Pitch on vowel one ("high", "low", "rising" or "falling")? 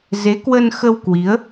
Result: rising